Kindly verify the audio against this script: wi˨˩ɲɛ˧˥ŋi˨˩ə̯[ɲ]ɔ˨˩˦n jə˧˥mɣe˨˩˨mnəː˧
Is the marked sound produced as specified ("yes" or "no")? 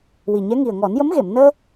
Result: no